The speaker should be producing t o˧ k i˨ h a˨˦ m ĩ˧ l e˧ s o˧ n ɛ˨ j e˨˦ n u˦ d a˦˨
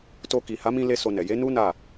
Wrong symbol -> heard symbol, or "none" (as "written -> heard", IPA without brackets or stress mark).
d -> n